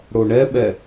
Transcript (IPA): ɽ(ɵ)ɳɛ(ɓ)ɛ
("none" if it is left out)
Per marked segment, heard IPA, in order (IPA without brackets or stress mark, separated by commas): o, ɓ